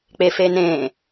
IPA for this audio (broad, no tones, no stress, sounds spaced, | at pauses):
k͡p e f e n ẽ